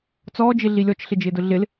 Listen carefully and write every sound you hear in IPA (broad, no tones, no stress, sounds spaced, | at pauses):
t͡s ɔː d͡ʒ ɪ ɮ i lʲ ɔ t͡ʃ ɬ ɪ d͡ʒ ɪː d ʊ ɮ ɪ l